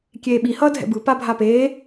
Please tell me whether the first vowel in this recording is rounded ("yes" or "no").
no